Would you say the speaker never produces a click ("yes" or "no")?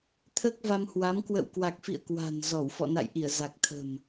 yes